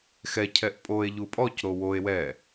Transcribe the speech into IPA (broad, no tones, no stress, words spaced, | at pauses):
xɛ cʰɛʔpʼoe̯ ʎupʼɔc ɾowoe̯ wɛ